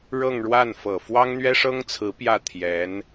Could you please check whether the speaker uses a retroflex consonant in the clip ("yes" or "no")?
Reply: yes